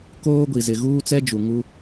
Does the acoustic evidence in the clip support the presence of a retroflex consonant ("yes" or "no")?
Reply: no